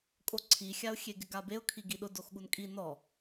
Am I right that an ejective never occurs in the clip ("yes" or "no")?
no